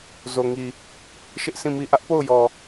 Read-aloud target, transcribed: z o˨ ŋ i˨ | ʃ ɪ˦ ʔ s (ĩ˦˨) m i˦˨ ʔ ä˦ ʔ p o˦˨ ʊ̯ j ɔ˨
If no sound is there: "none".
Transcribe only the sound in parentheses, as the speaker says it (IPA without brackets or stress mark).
ĩ˦˨